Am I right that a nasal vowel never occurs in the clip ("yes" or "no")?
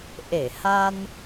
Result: yes